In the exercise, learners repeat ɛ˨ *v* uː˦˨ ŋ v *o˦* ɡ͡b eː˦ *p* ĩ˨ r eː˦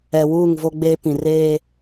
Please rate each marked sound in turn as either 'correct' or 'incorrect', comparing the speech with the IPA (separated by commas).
incorrect, correct, correct